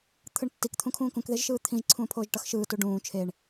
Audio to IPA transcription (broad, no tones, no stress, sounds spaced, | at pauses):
t̪ʰ ɯ ɳ tː i k t̪ʰ ũ kʰ ũː k ũ k ð e ʒ ʃ ɯː t̪ʰ ĩ ʒ ǀʰ ũː pʰ oː ʒ ʈ ʌ x ʃ ɯː t u ɖ ũː t͡ʃʰ e ɳ